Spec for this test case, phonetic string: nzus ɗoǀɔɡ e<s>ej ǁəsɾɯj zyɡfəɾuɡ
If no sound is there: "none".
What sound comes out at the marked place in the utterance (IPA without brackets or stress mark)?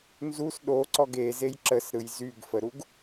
z